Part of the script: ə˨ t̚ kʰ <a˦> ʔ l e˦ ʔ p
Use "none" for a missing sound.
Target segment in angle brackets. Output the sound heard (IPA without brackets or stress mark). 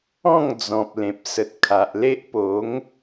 a˨